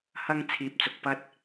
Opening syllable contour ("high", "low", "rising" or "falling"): high